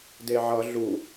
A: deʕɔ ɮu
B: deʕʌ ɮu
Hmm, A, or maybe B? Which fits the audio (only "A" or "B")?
B